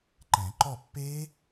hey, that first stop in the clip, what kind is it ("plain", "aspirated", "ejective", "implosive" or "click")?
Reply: click